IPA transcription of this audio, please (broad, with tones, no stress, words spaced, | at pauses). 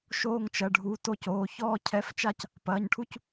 ʃoː˥˧ŋt͡ʃɐ˩˧˩ɖʱu˩˧˩ to˥˧coː˩˧˩ çɔː˥˧ cʰɛ˧˥˧ft͡ʃa˥˧c | pɐː˩˧˩ɲʈʰu˥˧c